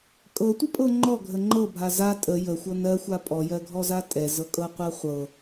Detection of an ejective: present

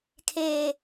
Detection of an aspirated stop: present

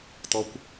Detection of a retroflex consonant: absent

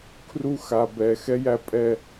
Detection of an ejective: present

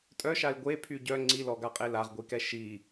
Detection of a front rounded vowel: present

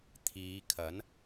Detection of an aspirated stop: present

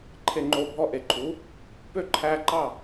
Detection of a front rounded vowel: present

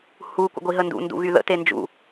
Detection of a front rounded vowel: present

